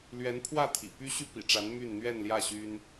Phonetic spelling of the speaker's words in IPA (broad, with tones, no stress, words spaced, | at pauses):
lɥɛ˧˥npʰwä˥˩ t̪ʰḭ˨˩ py˥ɕy˥ pḭ˨˩ʈ͡ʂa˧˥n my˥˧nn̪ɥɛ˥˧nljä˥˩ ɕy˥n